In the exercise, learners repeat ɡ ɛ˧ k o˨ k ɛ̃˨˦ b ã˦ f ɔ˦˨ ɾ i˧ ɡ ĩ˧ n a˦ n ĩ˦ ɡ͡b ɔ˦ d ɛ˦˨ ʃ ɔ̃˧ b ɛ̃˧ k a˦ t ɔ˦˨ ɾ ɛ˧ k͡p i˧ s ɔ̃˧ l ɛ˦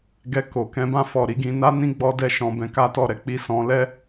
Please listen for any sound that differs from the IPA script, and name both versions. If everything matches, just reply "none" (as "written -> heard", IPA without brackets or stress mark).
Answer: none